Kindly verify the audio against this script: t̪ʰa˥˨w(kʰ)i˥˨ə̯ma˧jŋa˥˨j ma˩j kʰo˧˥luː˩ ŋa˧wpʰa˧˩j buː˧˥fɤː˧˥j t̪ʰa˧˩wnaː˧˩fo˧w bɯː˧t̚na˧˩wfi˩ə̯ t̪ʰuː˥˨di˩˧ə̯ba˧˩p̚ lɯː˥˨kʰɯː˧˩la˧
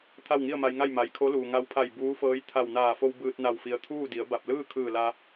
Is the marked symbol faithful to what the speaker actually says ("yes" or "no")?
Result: no